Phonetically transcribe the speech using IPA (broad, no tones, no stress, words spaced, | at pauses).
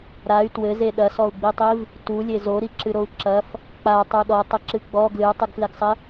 ɾay̯ twɘze ɗɐsɔu̯ɡ͡bitˤiv | tulʲe zoɾiǁɨɾou̯ ǁɐf | k͡patˤu ɗɔtˤɘǁɨ ɡ͡bɔ ɡlɨu̯tˤɨɡfleɡsˤɘ